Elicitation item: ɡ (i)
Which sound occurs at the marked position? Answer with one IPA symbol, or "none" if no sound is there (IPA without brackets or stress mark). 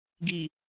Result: i